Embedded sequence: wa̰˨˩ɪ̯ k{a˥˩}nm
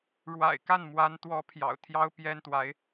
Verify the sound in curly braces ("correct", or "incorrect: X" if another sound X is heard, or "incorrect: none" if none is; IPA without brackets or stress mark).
correct